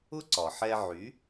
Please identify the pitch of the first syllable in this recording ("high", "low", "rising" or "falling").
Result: high